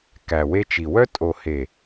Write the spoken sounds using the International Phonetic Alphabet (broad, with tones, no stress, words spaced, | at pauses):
kæ˨we˧t͡ʃi˨ wœ˧tʼo˨he˨